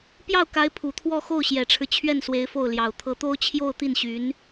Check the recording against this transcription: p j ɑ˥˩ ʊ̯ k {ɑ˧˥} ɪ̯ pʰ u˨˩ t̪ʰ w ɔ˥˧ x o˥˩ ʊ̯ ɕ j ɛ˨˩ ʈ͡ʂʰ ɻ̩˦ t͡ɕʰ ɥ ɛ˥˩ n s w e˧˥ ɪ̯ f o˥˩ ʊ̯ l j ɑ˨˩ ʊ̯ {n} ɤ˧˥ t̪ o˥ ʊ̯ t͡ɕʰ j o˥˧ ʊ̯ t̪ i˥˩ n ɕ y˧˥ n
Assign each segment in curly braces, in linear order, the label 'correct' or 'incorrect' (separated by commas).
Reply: incorrect, incorrect